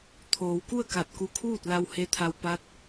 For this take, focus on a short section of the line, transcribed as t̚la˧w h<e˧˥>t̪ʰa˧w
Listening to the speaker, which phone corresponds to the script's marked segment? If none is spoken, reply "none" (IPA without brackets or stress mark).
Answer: e˧˥